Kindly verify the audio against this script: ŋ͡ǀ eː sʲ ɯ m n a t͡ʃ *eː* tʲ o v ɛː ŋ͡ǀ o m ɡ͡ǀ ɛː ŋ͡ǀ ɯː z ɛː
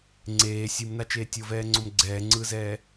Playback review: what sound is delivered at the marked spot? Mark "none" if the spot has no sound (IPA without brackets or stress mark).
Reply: eː